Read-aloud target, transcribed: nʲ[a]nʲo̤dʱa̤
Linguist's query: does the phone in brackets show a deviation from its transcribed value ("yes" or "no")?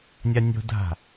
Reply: no